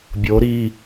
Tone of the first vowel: rising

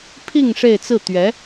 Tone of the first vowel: falling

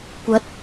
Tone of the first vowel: rising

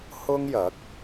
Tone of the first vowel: high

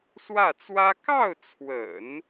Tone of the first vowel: falling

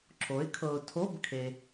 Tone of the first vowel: rising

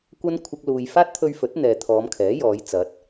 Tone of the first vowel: high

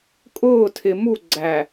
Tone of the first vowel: falling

